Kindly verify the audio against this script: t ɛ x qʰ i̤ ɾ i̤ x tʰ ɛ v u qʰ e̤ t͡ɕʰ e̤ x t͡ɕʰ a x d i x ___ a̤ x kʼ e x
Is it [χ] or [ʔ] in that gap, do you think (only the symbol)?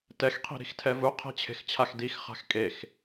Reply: χ